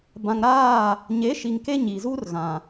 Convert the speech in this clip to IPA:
bã˨ŋɾaː˦˨ | ɲe˨˦ʃi˨ŋ ke˦ɲi˨zu˦r ɣã˨

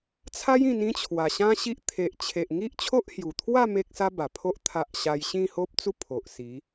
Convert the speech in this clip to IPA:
t͡sʰa˦jĩ˧n ĩ˦t͡ɕʰwa˨˩ɕã˦ɕi˦ʔ t̪ʰe˨ʔt͡ɕʰe˨ʔŋi˦ʔ t͡ɕʰo˦ʔhju˨˩ t̪ʰwa˥˧ me˦k̚sa˦ba˨˩pʰo˦ʔ t̪ʰa˦ʔ ɕa˧j ɕĩ˥˧ho˦p̚t͡su˥˧ pʰo˨ʔsi˨˦

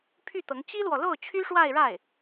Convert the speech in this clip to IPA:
pʰy˥˩t̪ɤ˧˥ŋ t͡ɕi˥lwɔ˨lo˥˩ʊ̯ t͡ɕʰy˥ʂwa˥˧ɪ̯ɻa˥˩ɪ̯

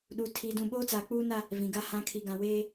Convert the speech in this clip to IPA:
ɗuː˨ tʰiː˨dũ˨ɓoː˦t͡saː˨ k͡puː˦na˦ | vĩ˨ɡa˦ hã˨ kʰi˨ɡã˨ weː˦

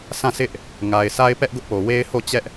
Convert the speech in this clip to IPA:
sʰã˦˨sɪ˦ʔ | ŋa˨ɪ̯sʰa˦ɪ̯pɛ˦ʔ ɡʊ˦ʔpo˨ we˦ɪ̯ho˦˨ t͡ɕɛ˦ʔ

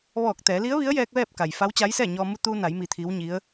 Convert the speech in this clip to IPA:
ʋɔː˧˩k̚t̪ɛː˩˧ li˧˥ə̯ʋi˧˥ə̯jɛː˧k̚ ʋɛː˥˨p̚ka˩j fa˧˥wt͡ɕa˧˥jsɛː˥˨ɲɔː˧ mu˧t̪uː˧na˩˧jmi˩˧ t̪ʰi˧˥wɲi˧˥ə̯

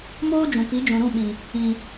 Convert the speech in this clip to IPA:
moː˦ d͡ʒũ˨pi˨˦d͡ʒũ˨ɾũ˦˨ ɓĩ˨ | ĩ˨

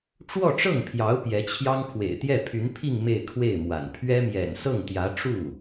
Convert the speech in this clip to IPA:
ʈ͡ʂwɔ˥˧ʈ͡ʂɤ˥˩ŋpʰjɑ˧˥ʊ̯ pjɛ˧˥t͡ɕʰjɑ˥ŋ pʰwḛ˨˩ɪ̯t̪jɛ˥˩pʰy˧˥npʰi˥˧ŋ me˥˧ɪ̯kʰwe˥˩ɪ̯mwa̰˨˩n pʰɥɛ˥mjɛ̰˨˩n sɤ˥˩ŋt̪jä˧˥ ʈ͡ʂu˥˩

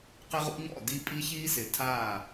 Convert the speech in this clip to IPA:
qɪ˦ʁṵ˦ɲɔ̰˦˨ di˦ pʼi˦çiː˦sɪ˨ tʰa˦˨

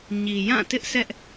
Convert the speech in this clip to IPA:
ɲi˨jã˦˨ tɪ˦ʔsɛ˦ʔ

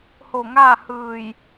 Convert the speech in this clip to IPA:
ho˧˩ŋaː˥˨hɯː˧˩j

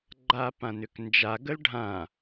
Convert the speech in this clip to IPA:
ɡ͡ǃapãnʏknd͡ʒa ɡəlɖʱã

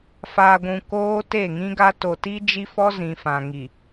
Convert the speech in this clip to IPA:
faː˨ɡʷũ˨ koː˦ te˦˨ŋĩ˦ɡa˦ to˨ti˦d͡ʒi˦fɔ˦ zĩ˨fã˨ŋi˨

